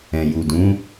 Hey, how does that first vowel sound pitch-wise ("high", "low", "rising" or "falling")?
low